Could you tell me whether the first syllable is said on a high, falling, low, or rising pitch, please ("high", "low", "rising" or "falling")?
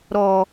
low